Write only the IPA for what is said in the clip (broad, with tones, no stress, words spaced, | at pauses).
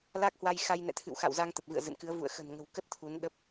la˦˥k̚hwa˧jxa˧j nɛ̰˧˨t̪ʰɨ̰˧˨wxa̰˧˨w za˧ŋt̪ə˨˩p̚vɨ̰˧˨ə̯ zɨ̰˧˨nkɨ˨˦ə̯ vṵ˧˨ə̯ xə̤˨˩nŋə̤˨˩wkə˦˥t̚ t̪ʰu˨˦n ɗə˦˥p̚